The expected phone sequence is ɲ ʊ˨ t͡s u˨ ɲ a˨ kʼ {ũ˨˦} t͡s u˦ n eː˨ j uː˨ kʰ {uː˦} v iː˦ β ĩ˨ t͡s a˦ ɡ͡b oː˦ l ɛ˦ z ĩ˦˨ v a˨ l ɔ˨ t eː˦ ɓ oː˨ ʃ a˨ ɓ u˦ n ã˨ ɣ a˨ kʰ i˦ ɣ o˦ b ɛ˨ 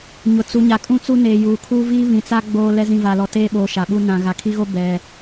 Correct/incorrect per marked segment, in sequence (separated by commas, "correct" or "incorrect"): incorrect, correct